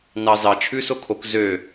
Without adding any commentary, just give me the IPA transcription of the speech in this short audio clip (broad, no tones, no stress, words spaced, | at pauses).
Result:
nɑzɑt͡ʃʰʉ sokʰok zø